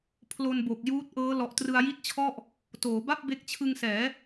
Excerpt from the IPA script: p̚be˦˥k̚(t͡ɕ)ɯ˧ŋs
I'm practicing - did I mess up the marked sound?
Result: yes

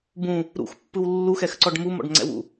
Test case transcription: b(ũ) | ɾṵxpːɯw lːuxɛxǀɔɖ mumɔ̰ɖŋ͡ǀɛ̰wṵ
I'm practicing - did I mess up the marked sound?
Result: no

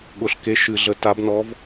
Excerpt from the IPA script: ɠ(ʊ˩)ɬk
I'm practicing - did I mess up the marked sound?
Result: no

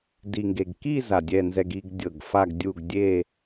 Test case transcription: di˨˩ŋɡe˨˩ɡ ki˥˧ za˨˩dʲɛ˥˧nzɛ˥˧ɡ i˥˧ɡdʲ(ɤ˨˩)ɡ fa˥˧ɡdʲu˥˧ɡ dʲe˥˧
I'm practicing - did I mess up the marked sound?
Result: no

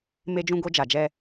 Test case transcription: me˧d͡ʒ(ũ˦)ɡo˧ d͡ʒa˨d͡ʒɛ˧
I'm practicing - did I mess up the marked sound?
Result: yes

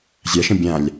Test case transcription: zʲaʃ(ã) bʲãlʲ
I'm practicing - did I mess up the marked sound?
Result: yes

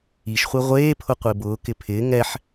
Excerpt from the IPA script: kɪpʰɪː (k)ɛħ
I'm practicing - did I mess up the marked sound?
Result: yes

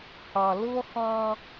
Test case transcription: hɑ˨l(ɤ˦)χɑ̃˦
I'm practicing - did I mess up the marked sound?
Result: no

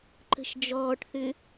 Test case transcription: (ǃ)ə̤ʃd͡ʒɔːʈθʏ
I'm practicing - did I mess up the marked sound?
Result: no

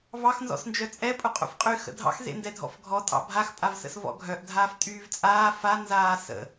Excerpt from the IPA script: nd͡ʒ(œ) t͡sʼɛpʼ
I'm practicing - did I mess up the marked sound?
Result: no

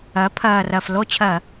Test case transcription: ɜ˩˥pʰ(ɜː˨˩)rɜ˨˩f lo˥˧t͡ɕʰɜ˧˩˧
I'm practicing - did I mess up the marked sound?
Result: no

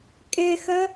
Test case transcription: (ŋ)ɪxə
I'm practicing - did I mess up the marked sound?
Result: yes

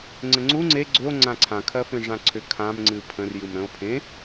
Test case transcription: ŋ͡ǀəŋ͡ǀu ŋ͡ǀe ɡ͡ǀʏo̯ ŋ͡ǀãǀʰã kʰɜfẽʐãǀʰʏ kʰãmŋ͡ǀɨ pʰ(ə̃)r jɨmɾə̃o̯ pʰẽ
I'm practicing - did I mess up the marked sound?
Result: no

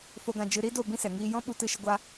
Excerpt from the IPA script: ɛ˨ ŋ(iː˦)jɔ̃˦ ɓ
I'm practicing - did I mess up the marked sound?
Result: yes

